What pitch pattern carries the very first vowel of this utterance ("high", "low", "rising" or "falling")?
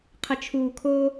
low